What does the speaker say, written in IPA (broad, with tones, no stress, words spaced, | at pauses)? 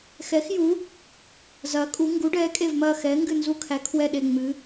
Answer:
xɛ˨˥xju˨˥ | zɐː˨˥kʼu˨˥ ŋɡu˨˥ɖɛː˨˥kʼe˦˨vmɐː˦˨ xɛː˨˥ŋɡɨ˦˨nzu˦˨kʰæ˨˥ kʰwɛ˦˨ɗe˦˨ ŋ͡mɨ˨˥